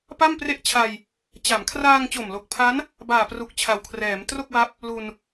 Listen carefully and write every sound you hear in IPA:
p a˥˩ m p r e˥˩ ʔ t͡ɕʰ a˧ j | t͡ɕ a˩˦ m kʰ r aː˧ ŋ t͡ɕ o˨˩ m l o˨˩ k̚ pʰ a˦˥ n | b aː˨˩ p r u˨˩ k̚ t͡ɕʰ a˨˩ w kʰ r ɛː˩˦ m t r o˥˩ k̚ w a˦˥ p̚ | l u˧ n

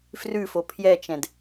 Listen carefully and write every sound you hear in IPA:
f r ʉ f o pʰ j ɛ t͡ʃ ɛ̃ d

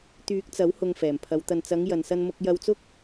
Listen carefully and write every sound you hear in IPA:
t̪ yː˨˥ k̚ t͡s ɐ˨˥ w h ʊ˨ ŋ f ɛː˨˩ m pʰ ɐ˨˧ w t̪ ɐ˨ n t͡s ɐ˨˧ ŋ j ɐ˨ n s ɐ˧ n m ʊ˧ k̚ j ɐ˧ w t͡s ʊ˥ k̚

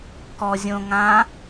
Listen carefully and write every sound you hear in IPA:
k ɔ zʲ õ ŋ ã

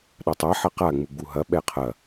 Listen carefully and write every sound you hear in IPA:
ɗ a tˤ a ħ ɐ q a ŋ͡m u ɡ͡b u ɦ ɐ ɓ ɛ qʰ ɐ

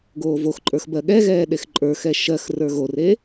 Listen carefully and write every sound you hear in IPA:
ɡ oː v o x ǃʼ ə˞ x b ɜ ɠ ɛ ɣ ɛː ɗ e x ǃʼ ə˞ x ɛ ʃ ɜ x r ə˞ ɣ o r e

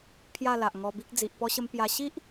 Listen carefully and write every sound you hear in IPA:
pʰ j a˥˧ l a˨ ʔ ŋ ɔ˧ b i˦ k̚ d͡z i˨ ʔ p ɔ˧ ɕ ə˧ m p j a˧ ɕ i˦ ʔ

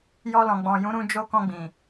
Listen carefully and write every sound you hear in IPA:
j ɔ˧ l ɔ̃˨ ɡ͡b ɔ̃˨ j ũ˨˦ ɾ ũ˧ d͡ʒ o˦ k ɔ̃˦˨ ɡ͡b ĩ˨

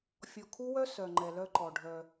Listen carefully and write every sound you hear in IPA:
fʲ ɔ˨ kʰ u˦ w œ˦ s œ˨ ŋ͡ǃ ɛ˨ l œ˦ ǃ ɔ˨ ɖʱ œ˦

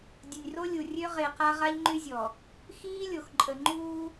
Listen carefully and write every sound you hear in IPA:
dʲ ə˨ nʲ r o˦ lʲ u˨ rʲ ø˦ ʁ e˨ q a˦ ʁ a˦ ʎ ŋ͡ǃ y˦ zʲ ɔ˨ | x iː˦ lʲ o˨ x ǃʼ ə˨ ŋ͡ǃ uː˦

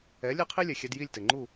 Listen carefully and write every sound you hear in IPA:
ɛ˩˥ lʲ ɛ˥ qʰ i˥ lʲ ɛ˩ xʲ ɛ˧ d j i˥˩ lʲ t ɘ˩ ŋ͡ǃ u˥˩

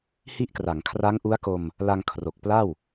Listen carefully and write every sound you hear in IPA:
h i˦˥ ʔ k r a˩˦ ŋ kʰ r a˦˥ ŋ ʔ u˦˥ a̯ k o˧ m | l a˧ ŋ kʰ r o˨˩ k̚ p l a˥˩ w

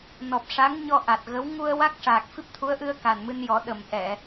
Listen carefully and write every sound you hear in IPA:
n ɔ˨˩ p̚ ʂ a˧˥ ŋ ɲ ɔ˧ ʔ a˨˩ t̚ ɣ ə˧˥ w ŋ u˧ ə̯ w a˦˥ k̚ ʂ aː˨˩ k̚ f i˦˥ p̚ t̪ʰ u˧˥ ə̯ ʔ ɨ˧ ə̯ k a˨˩ n m ɨ˧ n j ɔ˨˩˦ ɗ ə˨˩ m ʔ ɛ˨˩˨

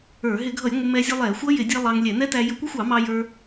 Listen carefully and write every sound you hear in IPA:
ə˞˧˩˧ ɦ ɪ˧˩˧ ɡʱ ʌ˧˩˧ j ŋʷ ɪ˧ m ɛ˧ zʲ u˧ lˠ ɛ˧˩˧ xʷ ʌ˦˥ j ɪ˧˩˧ dʲ ɛ˧ lˠ ɑ˧ ŋ lʲ ɛ˧˩˧ n ɛ˦˥ t æ˧ j ə˧˩˧ kʷ ə˦˥ xʷ ɑ˧˩˧ m ɑ˧ j ə˞˧

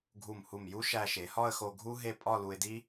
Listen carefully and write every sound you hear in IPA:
ɡʱ u˧˩ m h u˧˩ m j u˥ ʃ æ˧ ʃ e˩˧ h ɒ˥˧ ə̯ x o˧ ɡʱ u˥ ɦ e˥˧ pʼ ɒ˥˧ l u˧ ɪ̯ d i˥

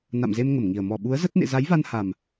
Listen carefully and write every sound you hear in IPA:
n a̰˧˨ m z e˧ m ŋ ə˧˩ m ŋ i˨˩ ə̯ m ɔ˧˩ ɓ u˨˦ ə̯ z ə˦˥ t̚ n ḛ˧˨ z a˨˦ j v a˧ n h a˨˩ m

